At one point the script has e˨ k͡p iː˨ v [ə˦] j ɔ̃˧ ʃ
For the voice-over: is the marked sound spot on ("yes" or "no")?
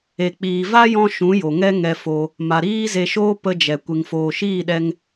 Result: no